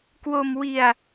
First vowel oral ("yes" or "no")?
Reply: yes